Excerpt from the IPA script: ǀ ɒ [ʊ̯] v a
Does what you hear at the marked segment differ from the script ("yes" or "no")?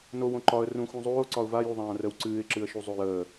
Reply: no